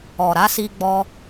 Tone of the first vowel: low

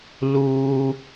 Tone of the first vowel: high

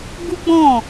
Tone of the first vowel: high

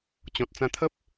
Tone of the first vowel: low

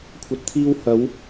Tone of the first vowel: low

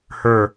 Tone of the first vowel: falling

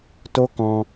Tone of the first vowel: high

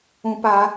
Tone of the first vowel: high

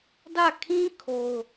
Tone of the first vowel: falling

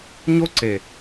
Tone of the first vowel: high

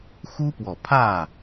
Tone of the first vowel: high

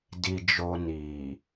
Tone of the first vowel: low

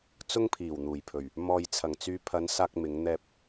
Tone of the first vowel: high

